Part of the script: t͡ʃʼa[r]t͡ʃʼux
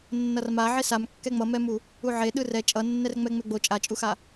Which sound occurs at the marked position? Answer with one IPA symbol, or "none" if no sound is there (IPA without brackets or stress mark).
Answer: none